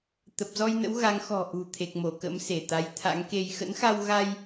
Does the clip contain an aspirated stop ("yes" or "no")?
yes